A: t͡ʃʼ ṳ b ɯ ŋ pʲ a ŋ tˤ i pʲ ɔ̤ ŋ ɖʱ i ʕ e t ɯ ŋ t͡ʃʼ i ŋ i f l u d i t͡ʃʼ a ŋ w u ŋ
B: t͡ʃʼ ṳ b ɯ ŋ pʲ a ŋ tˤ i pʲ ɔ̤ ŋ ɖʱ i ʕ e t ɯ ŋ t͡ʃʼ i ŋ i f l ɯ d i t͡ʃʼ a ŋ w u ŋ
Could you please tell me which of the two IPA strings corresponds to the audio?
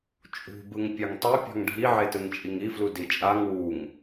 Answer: A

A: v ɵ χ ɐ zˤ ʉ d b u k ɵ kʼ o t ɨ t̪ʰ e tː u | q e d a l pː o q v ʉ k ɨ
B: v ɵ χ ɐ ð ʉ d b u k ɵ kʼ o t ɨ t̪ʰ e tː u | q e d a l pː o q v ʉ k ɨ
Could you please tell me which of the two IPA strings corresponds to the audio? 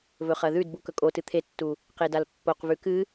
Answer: B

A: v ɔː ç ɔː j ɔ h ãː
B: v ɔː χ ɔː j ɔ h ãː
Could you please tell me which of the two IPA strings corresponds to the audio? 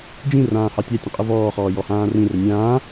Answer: B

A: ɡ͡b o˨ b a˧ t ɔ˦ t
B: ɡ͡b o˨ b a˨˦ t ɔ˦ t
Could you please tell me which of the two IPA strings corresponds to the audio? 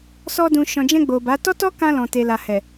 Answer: B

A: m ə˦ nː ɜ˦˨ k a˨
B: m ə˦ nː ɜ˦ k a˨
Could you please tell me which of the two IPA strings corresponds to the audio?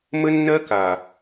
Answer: B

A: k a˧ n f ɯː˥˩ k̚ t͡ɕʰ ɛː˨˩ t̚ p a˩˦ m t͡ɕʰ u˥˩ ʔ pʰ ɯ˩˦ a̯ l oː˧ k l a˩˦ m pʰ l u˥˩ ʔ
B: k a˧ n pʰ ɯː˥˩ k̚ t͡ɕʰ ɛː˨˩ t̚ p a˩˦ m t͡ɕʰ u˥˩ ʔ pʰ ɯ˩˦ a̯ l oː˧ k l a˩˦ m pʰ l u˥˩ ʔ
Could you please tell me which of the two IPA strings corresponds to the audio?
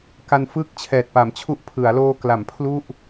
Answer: A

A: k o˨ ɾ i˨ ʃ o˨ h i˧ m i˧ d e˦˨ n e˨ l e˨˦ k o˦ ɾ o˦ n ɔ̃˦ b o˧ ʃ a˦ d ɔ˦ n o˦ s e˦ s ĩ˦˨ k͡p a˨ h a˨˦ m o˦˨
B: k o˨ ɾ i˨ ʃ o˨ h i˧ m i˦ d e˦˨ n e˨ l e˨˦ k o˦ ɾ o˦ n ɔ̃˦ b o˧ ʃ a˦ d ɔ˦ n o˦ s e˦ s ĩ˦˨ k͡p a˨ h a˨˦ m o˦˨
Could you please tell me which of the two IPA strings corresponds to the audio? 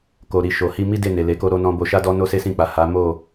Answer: B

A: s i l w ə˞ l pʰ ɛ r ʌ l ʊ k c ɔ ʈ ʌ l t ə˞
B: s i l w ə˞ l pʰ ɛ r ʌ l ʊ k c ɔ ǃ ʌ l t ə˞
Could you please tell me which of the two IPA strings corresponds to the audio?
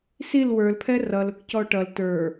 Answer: A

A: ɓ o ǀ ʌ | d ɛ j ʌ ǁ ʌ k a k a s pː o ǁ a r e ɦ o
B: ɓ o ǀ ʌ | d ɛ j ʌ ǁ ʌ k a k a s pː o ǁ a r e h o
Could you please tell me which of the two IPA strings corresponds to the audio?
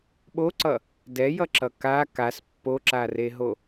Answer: A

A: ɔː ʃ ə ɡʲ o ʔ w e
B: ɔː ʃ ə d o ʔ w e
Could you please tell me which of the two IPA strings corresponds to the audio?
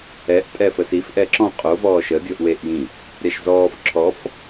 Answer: A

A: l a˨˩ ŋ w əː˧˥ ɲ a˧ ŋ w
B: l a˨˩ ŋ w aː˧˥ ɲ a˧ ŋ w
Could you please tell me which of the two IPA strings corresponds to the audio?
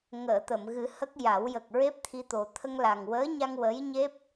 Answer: A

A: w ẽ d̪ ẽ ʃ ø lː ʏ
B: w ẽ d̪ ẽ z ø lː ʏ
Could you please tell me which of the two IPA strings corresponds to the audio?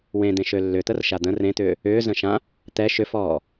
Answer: A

